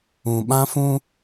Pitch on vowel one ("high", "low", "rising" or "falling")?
low